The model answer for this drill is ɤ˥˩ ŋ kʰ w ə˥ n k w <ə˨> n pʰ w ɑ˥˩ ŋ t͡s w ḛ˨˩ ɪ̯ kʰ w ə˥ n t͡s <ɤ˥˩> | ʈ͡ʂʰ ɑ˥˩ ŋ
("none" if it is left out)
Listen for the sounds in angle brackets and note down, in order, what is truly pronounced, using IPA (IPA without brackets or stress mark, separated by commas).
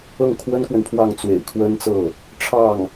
ə˨, ɤ˥˩